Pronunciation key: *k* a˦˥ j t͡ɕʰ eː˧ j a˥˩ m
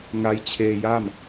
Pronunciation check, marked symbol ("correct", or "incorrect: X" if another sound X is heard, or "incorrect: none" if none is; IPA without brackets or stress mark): incorrect: ŋ